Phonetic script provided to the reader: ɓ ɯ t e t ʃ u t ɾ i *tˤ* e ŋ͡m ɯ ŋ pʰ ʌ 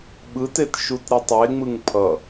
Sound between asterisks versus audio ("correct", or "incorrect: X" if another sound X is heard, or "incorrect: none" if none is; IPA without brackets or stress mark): correct